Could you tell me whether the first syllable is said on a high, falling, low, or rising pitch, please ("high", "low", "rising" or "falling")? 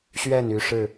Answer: falling